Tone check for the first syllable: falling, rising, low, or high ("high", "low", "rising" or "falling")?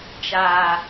low